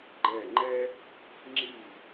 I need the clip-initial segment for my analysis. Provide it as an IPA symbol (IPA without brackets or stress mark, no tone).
ɡ͡ǃ